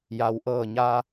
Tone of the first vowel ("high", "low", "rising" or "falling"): low